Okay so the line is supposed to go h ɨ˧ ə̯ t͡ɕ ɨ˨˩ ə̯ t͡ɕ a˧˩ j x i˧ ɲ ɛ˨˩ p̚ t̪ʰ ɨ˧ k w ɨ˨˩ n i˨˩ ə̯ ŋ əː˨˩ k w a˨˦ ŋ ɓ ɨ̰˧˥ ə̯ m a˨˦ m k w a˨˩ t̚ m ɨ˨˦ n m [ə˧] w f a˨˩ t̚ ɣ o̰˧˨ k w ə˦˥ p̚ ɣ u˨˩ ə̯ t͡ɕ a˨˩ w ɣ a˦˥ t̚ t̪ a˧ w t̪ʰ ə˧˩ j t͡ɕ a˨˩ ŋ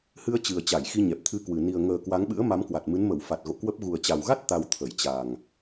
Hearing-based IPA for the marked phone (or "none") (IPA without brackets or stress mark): ə˧˩